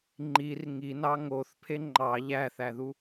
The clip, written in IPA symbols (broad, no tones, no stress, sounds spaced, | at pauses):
ŋ͡ǃ i r ŋ i n ɑ ŋ o θ pʰ e ŋ͡ǃ ɑ ʎ æ θ æ ð u